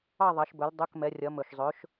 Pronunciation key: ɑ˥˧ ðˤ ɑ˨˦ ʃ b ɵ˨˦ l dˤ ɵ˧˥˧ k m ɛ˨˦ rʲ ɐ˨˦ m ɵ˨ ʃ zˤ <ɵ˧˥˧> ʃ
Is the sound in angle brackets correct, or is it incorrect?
incorrect